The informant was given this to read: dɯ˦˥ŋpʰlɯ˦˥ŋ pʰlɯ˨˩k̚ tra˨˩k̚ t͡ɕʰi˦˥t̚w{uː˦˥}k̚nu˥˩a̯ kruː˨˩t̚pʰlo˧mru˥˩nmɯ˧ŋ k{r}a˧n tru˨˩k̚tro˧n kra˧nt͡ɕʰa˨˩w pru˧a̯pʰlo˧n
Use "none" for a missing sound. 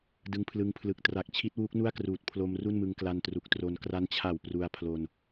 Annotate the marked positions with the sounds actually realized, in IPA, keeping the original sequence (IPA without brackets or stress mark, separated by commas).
uː˦˥, l